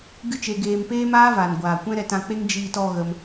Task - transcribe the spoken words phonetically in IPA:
ɡɨ˦t͡ʃe˧ɡeː˧m peː˦maː˦vaː˨n ɡʷaː˨kʷɛ̃˦ ɾɛ˧tã˧k͡pe˦ŋ d͡ʒiː˧tɔ˧ ɣə˧m

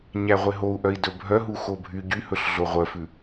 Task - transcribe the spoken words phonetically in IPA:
ɲæʁʷeɦou̯ ʔœi̯dɵbʱœ ɦuxobʱy ɟyhɵɬɮo ʁʷœfʉ

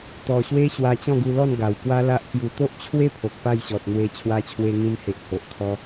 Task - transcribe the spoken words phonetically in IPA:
t̪ɔ˨˩ɕwe˦ ɕwa˧t͡ɕɔ̃˥˧ɡu˧lɔ˥˧n ɡa˨˩wkwa˦la˦ʔkju˧ t̪o˦ʔt͡ɕʰwe˦pʰo˨k̚ pa˥˧jɕɔ˨t̚n̪we˧ t͡ɕʰwa˧t͡ɕʰwe˧ŋĩ˧mhe˨ʔ ho˨ʔt̪ʰɔ˧

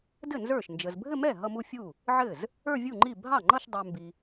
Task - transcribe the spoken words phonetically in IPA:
dɘ˥˩ nzə˞˥˩ʃnd͡ʒə˨z bʱɘ˥˧mɛ˥˩ ɦʌ˥˧mu˥˧fʲu˥˩ | ʕɘ˥˩z | ə˞˥˧vʲu˥˩ŋ͡ǃi˥˩ bʱɑ˥˩ŋ͡ǃʌ˥˧ʃdˤə˞˨ mbi˨

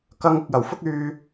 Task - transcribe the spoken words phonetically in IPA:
kɐ˨˧ŋ ʊ˨k̚jɐ˨˩wfʊ˥k̚ yː˧

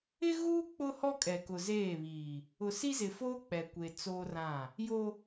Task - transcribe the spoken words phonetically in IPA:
ɪ˦ɣuː˦ k͡pʊ˦hɔ˦kʼɛ˨ kʊ˨zeː˦˨βiː˨ | ʊ˨si˦zɪ˨foː˦ k͡pɛ˨kʷe˨ t͡soː˦rã˦˨ | jo˦

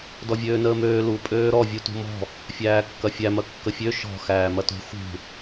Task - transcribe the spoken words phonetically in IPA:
dɔvʲøːnəːmøː lu pʼøːɾɔ vʲutṳmɔ̤ | fʲæːkːɐfʲæ mɐkːəfʲø ʃɔ̤ xæːmɐtṳ xṳ

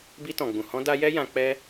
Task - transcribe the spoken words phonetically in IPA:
bi˧tɔ̃˨ɡ͡bũ˨hɔ̃˧ da˧jɛ˦ jã˧ k͡pɛ˦

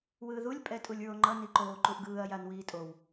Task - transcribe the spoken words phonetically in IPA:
wɯːðulʲ pʼɛtʼulʲɹoŋ͡ǃʌ niǃoː ǃuʔɡɯːɐ̯ janwiːtʼow

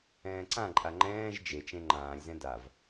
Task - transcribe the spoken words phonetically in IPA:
ɛ̃ːǀãǃʼa ŋ͡ǃɛ̃ːʒ d͡ʒet͡ʃẽ ŋ͡ǃãːlʲzɛ̃ dav

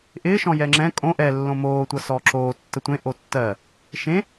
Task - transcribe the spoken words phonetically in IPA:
ʔɪːʃɔ̃ jɛŋ͡ǁɛ̃ kʼõ ʔɛ lːõmoːtʷʌ sɔːǁoː tːətʷẽ ʔotːɜ | ʃẽ

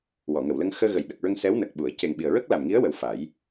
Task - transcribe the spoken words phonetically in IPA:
wɔ˨˩˨ŋə˨˩˨wlə˧ŋ xəː˧ɣə˨˩˨jɗə˨˩k̚ɹə˧ŋ sɛ˧˥wnə˨˩k̚ɓu˨˩˨ə̯ ce˨˩ŋɓi˨˩ə̯ɹə˦˥k̚ la˨˩mŋi˧˥ə̯wə˨˩w fa˨˩˦j

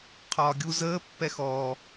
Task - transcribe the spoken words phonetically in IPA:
qʰɒːɡʲu zəː pːɛxɔ

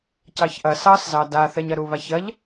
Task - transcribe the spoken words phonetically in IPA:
cɑçʔɐ sɑszɑ daθɛɲɐ ɾuβaçɐʎ

